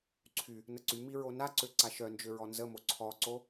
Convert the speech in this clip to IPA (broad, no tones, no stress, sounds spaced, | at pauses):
ǀʰ y | n ə ǀ y m i ɹ o n a ǀ ø ǀ a ʃ œ n d͡ʒ ø ɹ ɔ n z ə m o ǀʰ ɔ ǀ o